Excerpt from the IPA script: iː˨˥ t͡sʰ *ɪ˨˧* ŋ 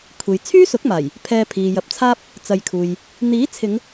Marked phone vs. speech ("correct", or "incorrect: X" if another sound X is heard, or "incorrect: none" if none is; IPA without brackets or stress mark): correct